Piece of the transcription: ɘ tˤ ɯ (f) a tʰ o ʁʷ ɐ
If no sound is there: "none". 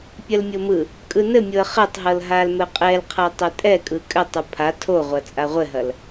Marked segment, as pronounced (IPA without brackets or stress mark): pʰ